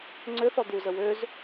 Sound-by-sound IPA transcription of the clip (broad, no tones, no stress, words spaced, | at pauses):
ŋ͡ǀøθɔ d̪uzə wøz